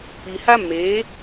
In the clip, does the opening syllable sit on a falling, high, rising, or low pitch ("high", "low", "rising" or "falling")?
low